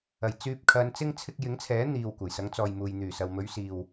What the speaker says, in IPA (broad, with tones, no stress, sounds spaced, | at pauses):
ɐ˨˩ j t͡s yː˧ p̚ kʰ ɐ˨˧ n t͡s ɪ˥ ŋ t͡sʰ ɪ˧ k̚ j ɪ˨˥ ŋ t͡sʰ ɛː˨˥ n̪ iː˧ w kʷ ɐ˨˩ j s ɐ˨˧ ŋ t͡s ɔː˨ j m uː˨ j n̪ yː˨˩ s ɐ˨ w m ɵ˨˧ ɥ s iː˨ w